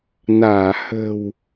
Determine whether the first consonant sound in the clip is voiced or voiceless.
voiced